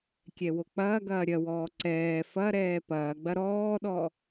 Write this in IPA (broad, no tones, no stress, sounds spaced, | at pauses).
kʲ ɛ w o k͡p ɐː ɡ ɐː ɾʲ ɐ w ɔː ǀ ɛː f ɐ ɾ ɛː p ɐː ɡ͡b ɐ ɾ ɔː ɗ ɔ